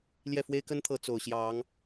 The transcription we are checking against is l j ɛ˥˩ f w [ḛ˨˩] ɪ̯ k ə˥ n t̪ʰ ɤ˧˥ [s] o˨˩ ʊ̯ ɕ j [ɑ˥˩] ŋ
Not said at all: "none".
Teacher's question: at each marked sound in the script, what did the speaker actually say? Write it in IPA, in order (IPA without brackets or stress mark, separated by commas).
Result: e˥, t͡s, ɑ˧˥